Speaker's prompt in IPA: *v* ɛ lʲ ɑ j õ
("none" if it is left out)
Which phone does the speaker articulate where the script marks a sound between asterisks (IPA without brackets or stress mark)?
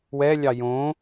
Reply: w